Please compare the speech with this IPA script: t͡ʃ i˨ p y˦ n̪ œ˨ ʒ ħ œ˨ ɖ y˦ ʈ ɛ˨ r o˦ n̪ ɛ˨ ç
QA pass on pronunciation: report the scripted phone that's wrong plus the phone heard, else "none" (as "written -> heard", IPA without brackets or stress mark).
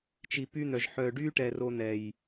ç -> j